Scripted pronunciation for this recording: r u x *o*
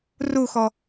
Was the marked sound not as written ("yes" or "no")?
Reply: yes